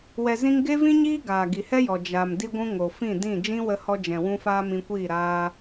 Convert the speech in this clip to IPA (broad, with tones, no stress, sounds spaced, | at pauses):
w ɛ˨ z ĩ˧ ŋ ɡ e˦ v ĩ˦ ɲ iː˦ ɡ aː˨ ɡ i˨ h ɛ˦ j ɔ˨ d͡ʒ a˨ m d i˧ ɡʷ ũ˧ ŋ o˨ f ĩ˦˨ d ĩ˦˨ d͡ʒ ĩ˦ w ə˧ h ɔ˧ d͡ʒ ɛ̃˨ w ũ˦ f aː˦ m ĩ˧ kʷ iː˦˨ ɾ aː˧